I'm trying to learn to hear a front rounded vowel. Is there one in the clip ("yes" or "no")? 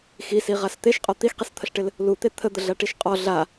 no